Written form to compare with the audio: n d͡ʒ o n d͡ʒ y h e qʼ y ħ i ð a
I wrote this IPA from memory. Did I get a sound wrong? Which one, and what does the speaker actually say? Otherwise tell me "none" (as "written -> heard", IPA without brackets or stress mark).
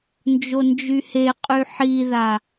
none